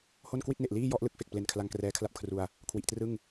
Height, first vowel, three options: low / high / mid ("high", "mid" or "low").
mid